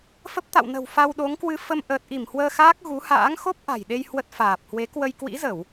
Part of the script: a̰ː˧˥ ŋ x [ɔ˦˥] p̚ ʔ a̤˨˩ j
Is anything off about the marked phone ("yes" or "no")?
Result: yes